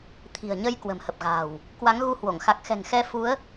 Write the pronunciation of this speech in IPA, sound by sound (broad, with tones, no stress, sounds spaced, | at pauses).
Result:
t̪ʰ i̤˨˩ ə̯ ɲ ə˧ j k w ə̤˨˩ m h ə˨˩ p̚ ɣ a̤ː˨˩ w | k w a˨˦ ŋ ɣ u˧ h w o˧˩ ŋ x a˨˩ k̚ x ɛ̤˨˩ ŋ x ɛ˧ f u˨˦ ə̯